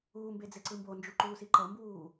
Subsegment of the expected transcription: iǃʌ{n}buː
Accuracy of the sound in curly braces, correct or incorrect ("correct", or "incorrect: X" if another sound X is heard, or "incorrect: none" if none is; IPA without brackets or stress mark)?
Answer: incorrect: m